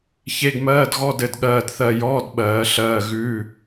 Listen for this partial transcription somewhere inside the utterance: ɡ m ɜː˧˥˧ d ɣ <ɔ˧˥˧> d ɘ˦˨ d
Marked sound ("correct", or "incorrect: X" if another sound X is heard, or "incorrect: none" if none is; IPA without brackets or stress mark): correct